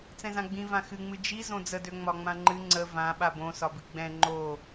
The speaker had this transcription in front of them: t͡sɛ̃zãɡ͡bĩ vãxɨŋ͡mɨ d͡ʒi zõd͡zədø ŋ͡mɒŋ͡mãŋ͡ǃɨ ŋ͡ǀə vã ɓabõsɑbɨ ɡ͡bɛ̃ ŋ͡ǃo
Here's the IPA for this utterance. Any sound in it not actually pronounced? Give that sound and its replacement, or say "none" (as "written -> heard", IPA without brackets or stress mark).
ɑ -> ɒ